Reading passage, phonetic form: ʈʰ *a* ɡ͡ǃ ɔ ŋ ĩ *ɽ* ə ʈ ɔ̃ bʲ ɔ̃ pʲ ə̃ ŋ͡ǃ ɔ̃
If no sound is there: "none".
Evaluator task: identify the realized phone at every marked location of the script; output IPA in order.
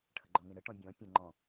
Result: ə, ɽ

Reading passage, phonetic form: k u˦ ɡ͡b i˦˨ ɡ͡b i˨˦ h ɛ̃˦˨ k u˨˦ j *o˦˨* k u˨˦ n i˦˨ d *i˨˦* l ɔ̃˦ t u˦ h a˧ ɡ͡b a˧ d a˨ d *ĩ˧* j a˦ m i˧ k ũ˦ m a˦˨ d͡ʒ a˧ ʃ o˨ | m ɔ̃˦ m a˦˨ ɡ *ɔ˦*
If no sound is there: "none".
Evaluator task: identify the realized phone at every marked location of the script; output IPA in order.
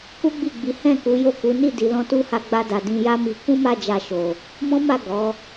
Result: o˦˨, i˨˦, ĩ˧, ɔ˨˦

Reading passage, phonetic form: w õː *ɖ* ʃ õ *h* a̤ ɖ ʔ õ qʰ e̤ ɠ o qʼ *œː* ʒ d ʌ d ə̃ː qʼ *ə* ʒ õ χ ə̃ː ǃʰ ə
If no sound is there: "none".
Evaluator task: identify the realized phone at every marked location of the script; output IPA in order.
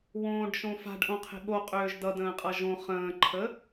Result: ɖ, f, øː, ʌ

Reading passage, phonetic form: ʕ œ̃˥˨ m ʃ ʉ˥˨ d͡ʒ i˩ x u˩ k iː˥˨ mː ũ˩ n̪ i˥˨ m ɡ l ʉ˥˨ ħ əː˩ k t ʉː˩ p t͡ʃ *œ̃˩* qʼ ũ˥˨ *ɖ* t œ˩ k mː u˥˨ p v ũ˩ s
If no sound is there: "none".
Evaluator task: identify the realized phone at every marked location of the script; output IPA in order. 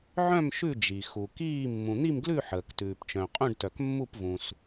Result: œ̃˩, ɖ

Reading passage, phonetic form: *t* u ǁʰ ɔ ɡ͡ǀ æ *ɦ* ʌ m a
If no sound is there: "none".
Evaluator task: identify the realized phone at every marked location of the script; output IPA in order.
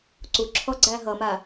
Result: ǀ, ɦ

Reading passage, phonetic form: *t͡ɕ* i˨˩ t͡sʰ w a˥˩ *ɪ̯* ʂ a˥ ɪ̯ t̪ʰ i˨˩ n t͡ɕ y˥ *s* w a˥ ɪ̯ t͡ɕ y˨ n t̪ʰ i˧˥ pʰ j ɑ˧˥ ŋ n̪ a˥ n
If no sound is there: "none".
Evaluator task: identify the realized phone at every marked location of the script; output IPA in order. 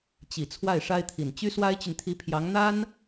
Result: t͡ɕ, ɪ̯, s

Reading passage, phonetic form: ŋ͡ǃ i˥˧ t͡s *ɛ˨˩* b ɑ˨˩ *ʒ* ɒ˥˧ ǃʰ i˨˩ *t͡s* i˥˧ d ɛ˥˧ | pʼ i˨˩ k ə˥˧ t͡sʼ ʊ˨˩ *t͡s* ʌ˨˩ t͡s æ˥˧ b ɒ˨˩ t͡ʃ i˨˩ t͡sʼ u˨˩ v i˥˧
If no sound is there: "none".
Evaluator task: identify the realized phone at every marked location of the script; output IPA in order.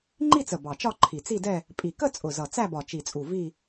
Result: ə˨˩, t͡ʃ, t͡s, z

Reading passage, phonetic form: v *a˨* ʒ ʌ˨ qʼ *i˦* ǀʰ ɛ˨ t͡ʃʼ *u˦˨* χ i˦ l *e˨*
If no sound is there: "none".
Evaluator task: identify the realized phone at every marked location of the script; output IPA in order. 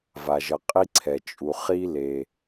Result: a˨, i˦, u˨, e˨

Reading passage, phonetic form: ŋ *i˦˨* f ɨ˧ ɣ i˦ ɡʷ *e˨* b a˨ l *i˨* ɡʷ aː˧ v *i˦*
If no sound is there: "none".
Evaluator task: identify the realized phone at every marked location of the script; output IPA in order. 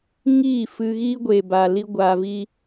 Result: iː˦˨, e˨, i˧, i˦

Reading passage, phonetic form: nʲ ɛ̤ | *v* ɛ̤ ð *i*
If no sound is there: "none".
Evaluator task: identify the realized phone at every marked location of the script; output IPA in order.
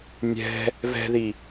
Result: v, i

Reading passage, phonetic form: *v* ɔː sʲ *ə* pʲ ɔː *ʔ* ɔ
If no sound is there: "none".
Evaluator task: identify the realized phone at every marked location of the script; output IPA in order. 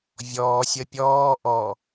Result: vʲ, ə, ʔ

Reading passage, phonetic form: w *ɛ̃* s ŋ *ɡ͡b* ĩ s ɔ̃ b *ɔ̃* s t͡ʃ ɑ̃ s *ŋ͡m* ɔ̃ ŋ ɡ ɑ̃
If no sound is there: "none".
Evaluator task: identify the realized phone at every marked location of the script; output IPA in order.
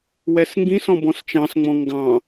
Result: ɛ, ɡ, ɔ̃, ŋ͡m

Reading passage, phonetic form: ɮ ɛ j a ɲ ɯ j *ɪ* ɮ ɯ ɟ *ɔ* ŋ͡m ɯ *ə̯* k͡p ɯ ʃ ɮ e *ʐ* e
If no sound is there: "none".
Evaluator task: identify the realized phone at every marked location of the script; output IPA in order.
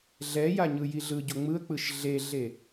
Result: i, o, ə̯, ɮ

